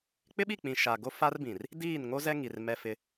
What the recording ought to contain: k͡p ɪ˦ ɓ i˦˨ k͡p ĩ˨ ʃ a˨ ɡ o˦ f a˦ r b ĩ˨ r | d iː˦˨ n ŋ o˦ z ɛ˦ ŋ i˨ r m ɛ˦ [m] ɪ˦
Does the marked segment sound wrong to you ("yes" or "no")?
yes